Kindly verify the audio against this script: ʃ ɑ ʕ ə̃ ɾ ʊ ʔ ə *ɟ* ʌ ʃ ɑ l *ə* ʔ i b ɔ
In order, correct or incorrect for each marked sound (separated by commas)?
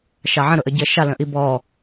correct, incorrect